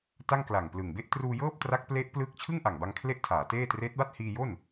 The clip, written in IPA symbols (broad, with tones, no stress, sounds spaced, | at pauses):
t a˥˩ ŋ k l a˨˩ ŋ p l ɯ˨˩ ŋ b e˥˩ ʔ t r uː˧ j ɤː˥˩ p̚ t r a˦˥ k̚ p l e˦˥ ʔ p l ɯː˦˥ k̚ t͡ɕʰ ɯ˥˩ ŋ ʔ a˨˩ ŋ b a˧ ŋ kʰ l e˥˩ ʔ tʰ aː˩˦ t eː˥˩ t r eː˦˥ t̚ b a˥˩ t̚ h iː˧ j o˥˩ n